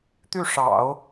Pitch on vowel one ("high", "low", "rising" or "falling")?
falling